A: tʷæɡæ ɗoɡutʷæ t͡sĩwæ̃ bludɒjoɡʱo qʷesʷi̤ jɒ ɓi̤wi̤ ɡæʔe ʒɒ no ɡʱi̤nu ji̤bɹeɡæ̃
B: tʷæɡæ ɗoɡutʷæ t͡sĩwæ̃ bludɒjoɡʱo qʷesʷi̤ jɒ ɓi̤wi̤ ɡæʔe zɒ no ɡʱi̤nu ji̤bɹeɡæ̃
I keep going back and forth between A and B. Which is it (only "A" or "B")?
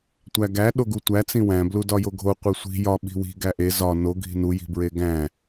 B